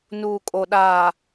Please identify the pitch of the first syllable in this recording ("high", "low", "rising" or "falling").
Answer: low